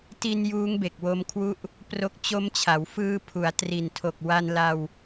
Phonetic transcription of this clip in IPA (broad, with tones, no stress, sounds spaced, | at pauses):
t i˧ n j uː˦˥ ŋ b e˨˩ k̚ w o˧ m kʰ w u˦˥ ʔ | p r o˦˥ k̚ t͡ɕ o˧ m t͡ɕʰ a˩˦ w f ɯː˧ pʰ u˩˦ a̯ t r i˨˩ n tʰ o˨˩ k̚ w a˧ n l a˧ w